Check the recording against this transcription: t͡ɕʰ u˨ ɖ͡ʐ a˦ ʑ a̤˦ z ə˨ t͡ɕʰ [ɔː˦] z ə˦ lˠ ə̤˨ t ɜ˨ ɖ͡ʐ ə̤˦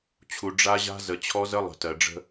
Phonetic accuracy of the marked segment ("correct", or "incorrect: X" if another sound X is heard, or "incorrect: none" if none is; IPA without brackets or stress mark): incorrect: ɔ˦